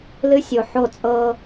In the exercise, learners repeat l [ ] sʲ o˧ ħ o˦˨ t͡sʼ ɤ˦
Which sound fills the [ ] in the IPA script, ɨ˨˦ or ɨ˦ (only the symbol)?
ɨ˦